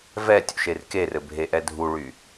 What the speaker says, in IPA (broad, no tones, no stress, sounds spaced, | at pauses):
v ɛ tʲ ṵ ʃ e r k e r ɘ bʱ e ʔ ɛ dʱ u ɭ y